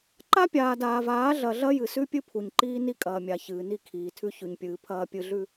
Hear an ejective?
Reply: yes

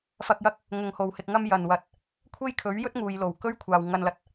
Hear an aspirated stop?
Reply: yes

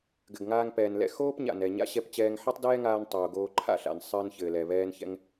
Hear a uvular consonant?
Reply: no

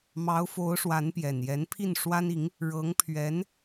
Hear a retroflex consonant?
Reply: yes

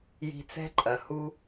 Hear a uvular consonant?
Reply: no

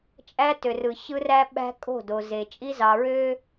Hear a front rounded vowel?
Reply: yes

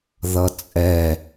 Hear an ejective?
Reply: yes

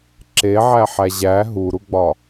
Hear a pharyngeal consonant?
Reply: yes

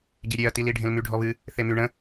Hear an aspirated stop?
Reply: no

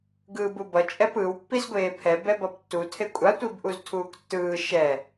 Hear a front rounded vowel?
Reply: no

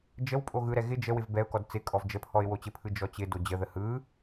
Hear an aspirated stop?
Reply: yes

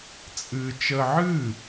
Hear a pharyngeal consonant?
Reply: yes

